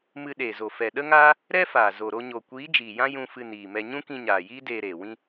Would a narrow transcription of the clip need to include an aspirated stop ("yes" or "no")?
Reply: no